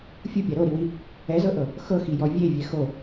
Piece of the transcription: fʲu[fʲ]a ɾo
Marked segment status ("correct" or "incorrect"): incorrect